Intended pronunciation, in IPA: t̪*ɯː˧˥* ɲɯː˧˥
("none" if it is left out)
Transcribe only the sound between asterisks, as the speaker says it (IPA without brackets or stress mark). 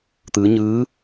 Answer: ɯː˧˥